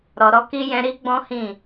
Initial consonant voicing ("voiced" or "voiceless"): voiced